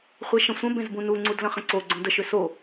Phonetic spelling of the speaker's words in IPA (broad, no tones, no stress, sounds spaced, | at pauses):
χʷ e ʃ ə̃ sʷ ə̃ b ẽ z b ũ n u ŋ͡ǀ u d l ə̃ χ ə̃ ǀ o ɡ͡ǀ õ d ə ʃ ʏ s o